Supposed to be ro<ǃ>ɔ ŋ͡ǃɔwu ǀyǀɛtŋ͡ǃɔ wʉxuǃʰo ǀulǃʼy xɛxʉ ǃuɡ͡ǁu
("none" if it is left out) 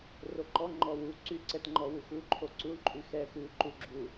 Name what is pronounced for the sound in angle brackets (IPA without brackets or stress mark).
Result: ǃ